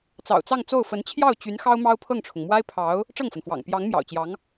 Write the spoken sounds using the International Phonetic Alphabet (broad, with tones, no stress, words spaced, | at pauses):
t͡sɑ̰˨˩ʊ̯t͡sɑ˥˧ŋt͡so˥˩ʊ̯ fə˧˥nt͡ɕʰjɑ˥˩ʊ̯ t͡ɕy˧˥n xɑ˥ʊ̯mɑ˥ʊ̯pʰɤ˥˩ŋʈ͡ʂʰʊ˩ŋ mwa˥ɪ̯pʰɑ˧˥ʊ̯ | ʈ͡ʂɤ˥˩ŋfə˩nfwɑ̰˨˩ŋ pjɑ˧˥ŋ mjɑ̰˨˩ʊ̯t͡ɕjɑ˧˥ŋ